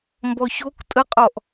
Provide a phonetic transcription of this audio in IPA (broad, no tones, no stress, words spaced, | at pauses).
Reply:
mbɔçok tʼəqʼɔʔ